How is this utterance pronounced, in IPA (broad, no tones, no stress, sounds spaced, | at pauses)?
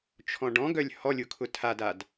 t͡ʃʰ ɔ̃ ɖ ɔ̃ ɡ œ lʲ h ɔ lʲ ʊ kʰ ʊ tʰ a d a d